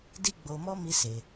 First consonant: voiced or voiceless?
voiced